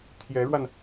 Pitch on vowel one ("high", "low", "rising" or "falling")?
rising